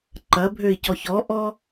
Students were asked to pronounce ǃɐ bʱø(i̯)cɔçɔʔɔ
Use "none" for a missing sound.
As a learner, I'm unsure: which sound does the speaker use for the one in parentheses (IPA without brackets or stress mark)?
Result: i̯